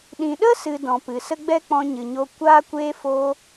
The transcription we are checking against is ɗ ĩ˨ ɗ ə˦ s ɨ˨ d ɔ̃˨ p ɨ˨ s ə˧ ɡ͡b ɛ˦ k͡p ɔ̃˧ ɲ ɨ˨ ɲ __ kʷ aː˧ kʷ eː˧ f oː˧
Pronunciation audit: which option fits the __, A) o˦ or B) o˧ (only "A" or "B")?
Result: B